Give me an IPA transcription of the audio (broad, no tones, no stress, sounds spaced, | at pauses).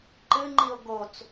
ǃ ɨ ŋ͡ǃ i o̯ ɡ o t͡s